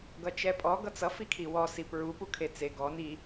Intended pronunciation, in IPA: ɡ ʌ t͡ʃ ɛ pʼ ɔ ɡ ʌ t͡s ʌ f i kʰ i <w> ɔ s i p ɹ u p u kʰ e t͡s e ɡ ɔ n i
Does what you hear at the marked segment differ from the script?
no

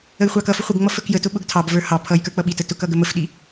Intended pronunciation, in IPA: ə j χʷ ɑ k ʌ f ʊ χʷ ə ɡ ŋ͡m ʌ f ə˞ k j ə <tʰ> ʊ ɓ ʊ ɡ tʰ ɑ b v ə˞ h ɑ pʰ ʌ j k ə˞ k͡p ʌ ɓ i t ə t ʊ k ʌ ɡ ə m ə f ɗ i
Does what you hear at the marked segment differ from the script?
yes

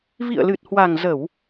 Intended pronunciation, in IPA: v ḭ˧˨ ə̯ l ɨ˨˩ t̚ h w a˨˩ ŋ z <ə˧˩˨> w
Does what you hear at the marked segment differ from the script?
no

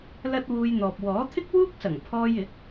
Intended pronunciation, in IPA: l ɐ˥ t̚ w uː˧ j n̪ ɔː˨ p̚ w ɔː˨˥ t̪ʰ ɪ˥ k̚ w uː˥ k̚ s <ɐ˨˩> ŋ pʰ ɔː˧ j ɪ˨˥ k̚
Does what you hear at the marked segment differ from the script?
no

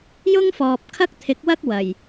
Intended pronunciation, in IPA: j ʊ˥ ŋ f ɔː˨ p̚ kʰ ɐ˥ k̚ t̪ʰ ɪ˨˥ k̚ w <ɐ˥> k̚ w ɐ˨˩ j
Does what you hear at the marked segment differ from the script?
no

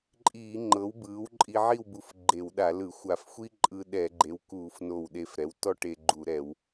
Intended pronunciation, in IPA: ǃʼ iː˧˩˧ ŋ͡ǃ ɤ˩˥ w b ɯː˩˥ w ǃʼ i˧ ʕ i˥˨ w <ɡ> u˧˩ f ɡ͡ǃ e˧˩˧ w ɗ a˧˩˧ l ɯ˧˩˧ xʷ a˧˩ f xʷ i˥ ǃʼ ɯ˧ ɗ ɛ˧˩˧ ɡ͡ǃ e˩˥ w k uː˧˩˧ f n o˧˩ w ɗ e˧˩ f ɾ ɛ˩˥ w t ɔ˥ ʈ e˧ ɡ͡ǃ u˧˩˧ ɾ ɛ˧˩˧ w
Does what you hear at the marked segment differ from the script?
yes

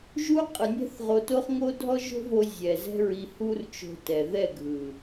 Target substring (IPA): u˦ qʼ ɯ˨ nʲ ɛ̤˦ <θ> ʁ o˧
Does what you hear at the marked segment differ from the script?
no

